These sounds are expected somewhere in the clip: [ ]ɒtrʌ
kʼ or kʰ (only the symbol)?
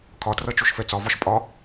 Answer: kʰ